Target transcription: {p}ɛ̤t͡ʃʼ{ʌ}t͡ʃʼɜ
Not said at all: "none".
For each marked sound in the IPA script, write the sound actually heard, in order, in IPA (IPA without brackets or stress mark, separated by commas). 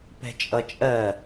p, ʌ